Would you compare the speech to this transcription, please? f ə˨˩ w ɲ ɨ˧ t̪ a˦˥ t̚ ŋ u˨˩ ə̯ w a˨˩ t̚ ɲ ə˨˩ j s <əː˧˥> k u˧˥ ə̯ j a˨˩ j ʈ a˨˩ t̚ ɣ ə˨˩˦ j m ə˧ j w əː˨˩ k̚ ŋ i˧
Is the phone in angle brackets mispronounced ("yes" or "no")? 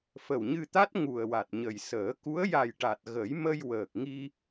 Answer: yes